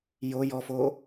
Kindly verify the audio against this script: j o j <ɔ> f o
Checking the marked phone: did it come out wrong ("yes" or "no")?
no